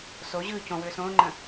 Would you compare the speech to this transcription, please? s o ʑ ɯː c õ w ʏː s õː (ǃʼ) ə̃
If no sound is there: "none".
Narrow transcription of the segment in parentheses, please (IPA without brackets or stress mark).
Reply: ŋ͡ǃ